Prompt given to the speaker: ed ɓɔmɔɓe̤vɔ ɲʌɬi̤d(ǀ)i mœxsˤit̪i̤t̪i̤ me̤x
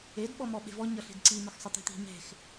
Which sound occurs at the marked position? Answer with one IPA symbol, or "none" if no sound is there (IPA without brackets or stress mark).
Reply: ǀ